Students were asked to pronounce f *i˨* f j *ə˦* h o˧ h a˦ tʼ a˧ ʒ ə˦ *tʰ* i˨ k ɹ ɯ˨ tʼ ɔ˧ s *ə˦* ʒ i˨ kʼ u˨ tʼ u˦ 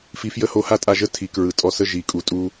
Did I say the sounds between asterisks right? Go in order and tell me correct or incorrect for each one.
incorrect, correct, correct, correct

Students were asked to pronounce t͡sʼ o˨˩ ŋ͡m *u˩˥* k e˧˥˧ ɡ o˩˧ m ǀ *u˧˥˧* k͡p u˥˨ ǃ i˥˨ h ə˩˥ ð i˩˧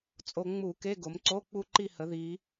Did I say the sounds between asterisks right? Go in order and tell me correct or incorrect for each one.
incorrect, incorrect

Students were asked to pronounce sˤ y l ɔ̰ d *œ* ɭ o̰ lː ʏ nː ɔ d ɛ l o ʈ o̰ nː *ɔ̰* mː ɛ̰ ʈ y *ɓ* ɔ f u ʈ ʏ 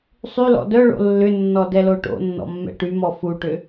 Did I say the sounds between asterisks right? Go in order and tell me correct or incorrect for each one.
correct, correct, incorrect

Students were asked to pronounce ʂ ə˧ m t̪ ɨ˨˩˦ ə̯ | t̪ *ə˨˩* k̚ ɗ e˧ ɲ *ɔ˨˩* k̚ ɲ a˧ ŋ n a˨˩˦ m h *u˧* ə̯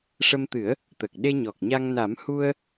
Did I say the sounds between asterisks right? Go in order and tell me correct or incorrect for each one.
correct, correct, correct

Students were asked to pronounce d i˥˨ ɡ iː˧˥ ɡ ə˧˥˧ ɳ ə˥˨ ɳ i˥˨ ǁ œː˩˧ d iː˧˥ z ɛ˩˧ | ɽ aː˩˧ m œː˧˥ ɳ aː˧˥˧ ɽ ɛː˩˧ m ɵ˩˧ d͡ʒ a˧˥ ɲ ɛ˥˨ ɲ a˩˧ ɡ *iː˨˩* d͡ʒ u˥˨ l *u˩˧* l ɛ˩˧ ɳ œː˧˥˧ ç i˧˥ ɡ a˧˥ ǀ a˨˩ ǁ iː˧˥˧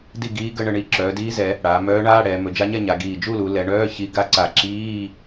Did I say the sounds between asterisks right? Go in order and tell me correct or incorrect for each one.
correct, correct

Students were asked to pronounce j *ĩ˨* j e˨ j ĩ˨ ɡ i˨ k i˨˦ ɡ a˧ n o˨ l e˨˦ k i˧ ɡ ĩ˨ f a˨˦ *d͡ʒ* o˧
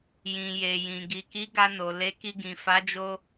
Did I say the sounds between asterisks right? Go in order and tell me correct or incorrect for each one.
correct, correct

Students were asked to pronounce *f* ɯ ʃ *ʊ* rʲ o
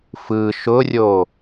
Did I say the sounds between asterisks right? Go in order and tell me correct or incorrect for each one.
correct, correct

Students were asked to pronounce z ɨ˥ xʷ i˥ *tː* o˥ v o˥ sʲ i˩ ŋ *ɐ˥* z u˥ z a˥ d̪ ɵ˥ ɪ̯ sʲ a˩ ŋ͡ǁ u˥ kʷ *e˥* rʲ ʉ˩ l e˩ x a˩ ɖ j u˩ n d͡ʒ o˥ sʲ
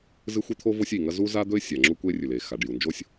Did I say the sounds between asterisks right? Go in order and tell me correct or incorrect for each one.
incorrect, correct, correct

